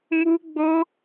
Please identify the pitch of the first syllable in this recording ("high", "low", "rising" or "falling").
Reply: high